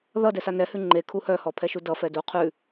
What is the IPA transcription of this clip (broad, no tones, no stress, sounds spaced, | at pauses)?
ð ʌ d ɛ s a n ɛ h ʉ ŋ͡ǃ e kʰ u h œ h ɔ pʰ ɛ ʃ u d ʌ f ɛ d u qʰ ʉ